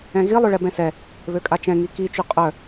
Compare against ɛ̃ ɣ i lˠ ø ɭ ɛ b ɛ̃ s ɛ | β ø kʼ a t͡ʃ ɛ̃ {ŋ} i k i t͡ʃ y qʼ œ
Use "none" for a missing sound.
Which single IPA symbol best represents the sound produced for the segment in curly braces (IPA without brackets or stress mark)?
ŋ